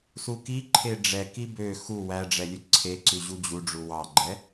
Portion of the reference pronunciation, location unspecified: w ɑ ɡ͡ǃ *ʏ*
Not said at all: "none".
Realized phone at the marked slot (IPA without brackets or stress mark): ɛ